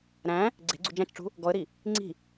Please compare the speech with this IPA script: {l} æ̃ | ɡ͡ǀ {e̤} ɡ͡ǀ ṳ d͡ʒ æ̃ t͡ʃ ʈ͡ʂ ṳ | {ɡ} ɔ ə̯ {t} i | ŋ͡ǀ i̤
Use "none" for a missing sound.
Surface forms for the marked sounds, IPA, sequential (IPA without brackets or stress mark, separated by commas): ɾ, e̤, ɡ, ɾ